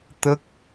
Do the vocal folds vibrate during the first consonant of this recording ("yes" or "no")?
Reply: no